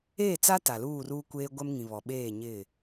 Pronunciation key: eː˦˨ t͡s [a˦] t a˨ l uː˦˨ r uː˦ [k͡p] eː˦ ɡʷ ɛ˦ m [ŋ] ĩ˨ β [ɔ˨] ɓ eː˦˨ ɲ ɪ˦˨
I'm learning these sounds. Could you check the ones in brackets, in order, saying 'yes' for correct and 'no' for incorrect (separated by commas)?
yes, no, yes, yes